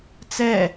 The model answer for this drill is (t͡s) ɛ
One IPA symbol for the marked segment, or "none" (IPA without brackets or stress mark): t͡s